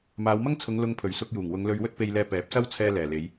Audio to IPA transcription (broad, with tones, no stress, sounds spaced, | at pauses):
m aː˨˧ w m ɐ˥ ŋ t͡sʰ ʊ˨˧ ŋ l ʊ˧ ŋ pʰ ɵ˨˩ ɥ s ʊ˧ k̚ j uː˨˩ ŋ w ʊ˨˧ ŋ l ɵ˧ ɥ w ɵ˥ t̚ p e˧ j l ɛː˧ p ɛː˨˥ p̚ s ɐ˥ w t͡sʰ ɛː˧ l ɛː˨˩ l e˨˧ j